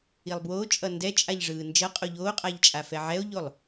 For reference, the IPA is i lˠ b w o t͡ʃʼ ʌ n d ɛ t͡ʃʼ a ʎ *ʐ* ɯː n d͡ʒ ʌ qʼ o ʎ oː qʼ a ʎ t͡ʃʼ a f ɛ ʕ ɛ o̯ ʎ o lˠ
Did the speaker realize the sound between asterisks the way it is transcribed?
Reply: yes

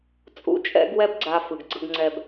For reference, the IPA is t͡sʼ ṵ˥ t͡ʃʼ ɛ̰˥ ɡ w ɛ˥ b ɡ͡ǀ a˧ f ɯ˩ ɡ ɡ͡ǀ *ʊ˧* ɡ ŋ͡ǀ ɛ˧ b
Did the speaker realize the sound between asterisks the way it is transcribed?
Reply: no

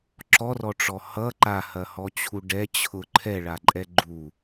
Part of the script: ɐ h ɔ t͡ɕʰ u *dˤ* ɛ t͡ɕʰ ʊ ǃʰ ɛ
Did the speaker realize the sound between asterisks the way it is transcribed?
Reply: no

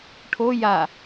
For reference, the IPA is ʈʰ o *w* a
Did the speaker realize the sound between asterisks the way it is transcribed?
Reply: no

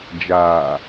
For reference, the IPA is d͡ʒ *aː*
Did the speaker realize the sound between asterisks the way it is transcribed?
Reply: yes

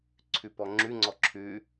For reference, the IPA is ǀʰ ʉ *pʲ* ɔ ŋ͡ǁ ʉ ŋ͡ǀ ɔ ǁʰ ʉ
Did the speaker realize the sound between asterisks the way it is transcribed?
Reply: no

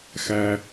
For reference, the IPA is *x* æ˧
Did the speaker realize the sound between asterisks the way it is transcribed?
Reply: yes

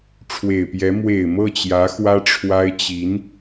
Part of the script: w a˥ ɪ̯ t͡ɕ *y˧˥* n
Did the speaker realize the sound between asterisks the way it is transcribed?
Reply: no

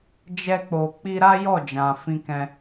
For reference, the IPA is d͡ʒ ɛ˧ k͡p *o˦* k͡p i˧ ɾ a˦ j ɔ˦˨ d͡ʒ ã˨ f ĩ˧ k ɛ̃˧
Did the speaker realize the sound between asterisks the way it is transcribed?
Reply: no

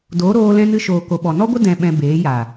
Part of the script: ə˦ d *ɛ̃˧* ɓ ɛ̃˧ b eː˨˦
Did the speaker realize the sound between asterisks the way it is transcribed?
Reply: yes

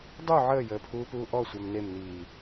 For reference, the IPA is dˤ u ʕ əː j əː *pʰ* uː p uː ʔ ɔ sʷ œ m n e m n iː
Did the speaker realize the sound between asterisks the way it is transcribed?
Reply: yes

